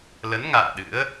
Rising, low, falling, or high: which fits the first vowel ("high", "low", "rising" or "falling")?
rising